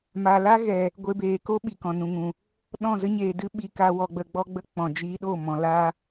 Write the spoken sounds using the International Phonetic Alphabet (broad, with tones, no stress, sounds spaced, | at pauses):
m a˨ l a˦ ɣ ɛ˨ | ɡʷ e˧ b eː˨ k o˦ ɓ i˨ k ɔ̃˨ n ũ˨ ŋ ũ˨ | ɗ ɔ̃˦˨ z ə˦ ɲ eː˨ d ɨ˦ ɓ i˧ k a˧ w ɔ˧ ɡ͡b ə˧ ɡ͡b ɔ˦ ɡ͡b ə˦ k͡p ɔ̃˨ d͡ʒ iː˧ ɗ o˦˨ m ɔ̃˨ l a˦